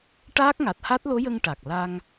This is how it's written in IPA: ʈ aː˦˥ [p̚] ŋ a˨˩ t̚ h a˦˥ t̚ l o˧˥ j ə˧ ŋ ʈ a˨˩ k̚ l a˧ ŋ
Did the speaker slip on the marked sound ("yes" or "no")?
yes